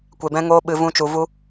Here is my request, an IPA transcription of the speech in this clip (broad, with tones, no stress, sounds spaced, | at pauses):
kʷ e˧ b ɛ̃˦ ŋ oː˦ ɓ ɨ˧ v ũ˦ t͡ʃ u˧ v u˦